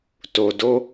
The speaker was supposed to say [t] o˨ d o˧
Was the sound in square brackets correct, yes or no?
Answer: yes